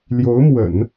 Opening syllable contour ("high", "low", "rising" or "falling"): rising